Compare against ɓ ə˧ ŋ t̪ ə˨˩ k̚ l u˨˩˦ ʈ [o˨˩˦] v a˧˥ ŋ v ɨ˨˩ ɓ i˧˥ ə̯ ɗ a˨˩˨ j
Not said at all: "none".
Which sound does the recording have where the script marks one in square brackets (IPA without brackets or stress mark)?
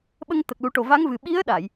o˨˩